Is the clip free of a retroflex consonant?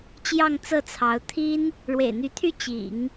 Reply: no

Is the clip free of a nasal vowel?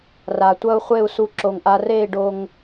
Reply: yes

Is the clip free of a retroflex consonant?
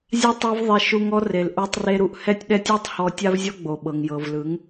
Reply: yes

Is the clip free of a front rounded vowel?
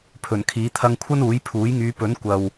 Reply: no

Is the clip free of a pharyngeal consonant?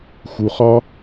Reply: yes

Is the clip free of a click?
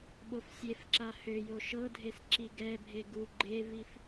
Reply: no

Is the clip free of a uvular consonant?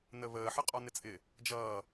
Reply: no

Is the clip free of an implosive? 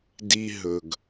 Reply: yes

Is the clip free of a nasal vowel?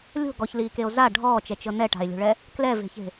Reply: yes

